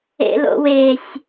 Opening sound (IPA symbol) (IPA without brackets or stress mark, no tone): ḛ